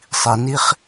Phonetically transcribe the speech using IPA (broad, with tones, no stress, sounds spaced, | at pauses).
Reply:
sˤ i˩˧ n i˥ χ